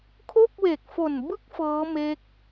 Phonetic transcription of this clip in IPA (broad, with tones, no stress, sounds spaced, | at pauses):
kʰ o˥˩ k̚ w e˨˩ k̚ f o˨˩ n b ɯ˥˩ k̚ f ɤː˦˥ m e˦˥ k̚